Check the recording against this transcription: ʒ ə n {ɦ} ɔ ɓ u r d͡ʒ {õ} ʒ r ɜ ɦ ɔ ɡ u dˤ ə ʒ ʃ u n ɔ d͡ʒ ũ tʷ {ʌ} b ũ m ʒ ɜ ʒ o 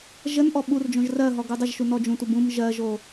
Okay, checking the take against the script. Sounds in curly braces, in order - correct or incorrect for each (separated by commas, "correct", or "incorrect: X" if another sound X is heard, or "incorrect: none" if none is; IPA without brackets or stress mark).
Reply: incorrect: ʔ, correct, correct